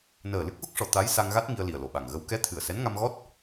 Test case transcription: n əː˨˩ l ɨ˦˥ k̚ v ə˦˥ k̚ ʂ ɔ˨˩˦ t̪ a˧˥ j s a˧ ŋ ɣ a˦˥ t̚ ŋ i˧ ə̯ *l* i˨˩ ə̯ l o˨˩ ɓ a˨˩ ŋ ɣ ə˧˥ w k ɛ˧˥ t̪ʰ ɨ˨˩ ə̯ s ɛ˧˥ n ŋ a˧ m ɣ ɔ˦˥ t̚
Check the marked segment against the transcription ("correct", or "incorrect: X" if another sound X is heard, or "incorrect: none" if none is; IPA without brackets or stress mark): correct